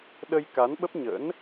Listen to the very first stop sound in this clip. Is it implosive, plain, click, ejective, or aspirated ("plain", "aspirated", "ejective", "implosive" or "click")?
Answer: implosive